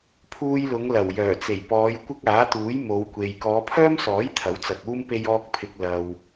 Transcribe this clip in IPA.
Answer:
pʰ uː˧ j l ʊ˨˧ ŋ l ɐ˨˩ w j œː˨˩ t͡s e˨˩ j p ɔː˨˧ j kʷ ɪ˥ k̚ aː˨˥ t̪ uː˨˥ j m o˨˧ w kʷ e˨ j k ɔː˨˧ pʰ œː˥ m s ɔː˨˥ j t̪ʰ ɐ˨˥ w t͡s ɐ˨ k̚ uː˥ m p e˧ j ɔː˧ k̚ pʰ ɪ˨ k̚ l ɐ˨ w

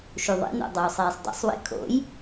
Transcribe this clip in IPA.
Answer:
ʃ u ðˤ ḭ n o̰ dˤ uː sˤ eː sˤ dˤ ɛ̰ sˤ w ḭ kʰ o̰ j

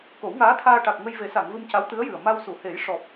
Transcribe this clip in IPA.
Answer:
k o˨˩˦ w ŋ aː˧˥ t̪ʰ aː˧ ʈ a˨˩ k̚ ŋ ə˧ j v e˨˩˦ s a˨˩˨ ŋ v ɨ˧ m c a˧˥ w t̪ ɨ˧˥ ə̯ j ɨ˨˩ ə̯ m a˧ w s u˨˩˨ h e˨˩˦ j ʂ ɔ˨˩ p̚

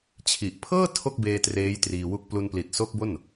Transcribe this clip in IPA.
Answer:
t͡ɕʰ i˨˩ ʔ pʰ ɤː˥˩ tʰ o˥˩ k̚ b eː˧ t r eː˦˥ j t r iː˧ w u˦˥ k̚ p l u˧ n p l i˨˩ t̚ s o˦˥ k̚ b o˥˩ n

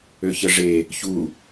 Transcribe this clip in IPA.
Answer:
ø ç ə ʐ e | ç u

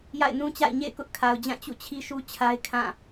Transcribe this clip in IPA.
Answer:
j a̰˦˨ ɪ̯ n ũ˦ t͡ɕ a̰˦˨ ɪ̯ ɲ ḛ˦˨ ɪ̯ k ʊ˦ ʔ kʰ a˨ ʊ̯ d͡ʑ ã˦˨ t͡ɕ ṵ˦˨ t͡ɕʰ i˦ ʃ u˦ t͡ɕʰ a˦ ɪ̯ kʰ ã˦˨

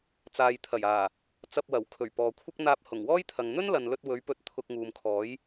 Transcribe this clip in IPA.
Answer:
t͡s aː˨ j t̪ʰ ɐ˨˩ j aː˨˩ | t͡s ɐ˧ p̚ w ɐ˨˩ w kʰ ɵ˨˩ ɥ p ɔː˨ kʷʰ ɪ˥ k̚ n̪ aː˧ p̚ h ʊ˨˩ ŋ w ɔː˥ j t̪ʰ ɐ˨ ŋ n̪ ɵ˥ n l ɐ˨ n l ɵ˧ t̚ w ɵ˨˥ ɥ p ɵ˨˥ t̚ t̪ʰ ʊ˧ k̚ ŋ uː˨ m kʰ ɔː˨˥ j

